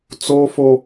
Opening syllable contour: high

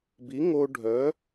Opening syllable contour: rising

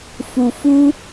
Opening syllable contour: low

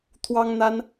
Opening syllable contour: high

